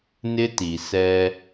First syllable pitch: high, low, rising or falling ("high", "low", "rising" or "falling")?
high